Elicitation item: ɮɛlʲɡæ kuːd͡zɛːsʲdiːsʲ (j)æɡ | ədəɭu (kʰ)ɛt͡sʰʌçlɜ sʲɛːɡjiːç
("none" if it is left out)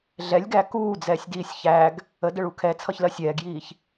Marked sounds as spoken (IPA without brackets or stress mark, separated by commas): ç, kʰ